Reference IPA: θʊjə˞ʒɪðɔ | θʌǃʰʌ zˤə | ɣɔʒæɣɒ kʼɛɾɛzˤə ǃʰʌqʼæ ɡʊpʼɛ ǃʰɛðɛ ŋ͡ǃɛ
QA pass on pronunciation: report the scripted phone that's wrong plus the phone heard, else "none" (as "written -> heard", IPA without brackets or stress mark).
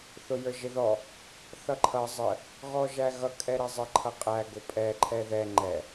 ɒ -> ʌ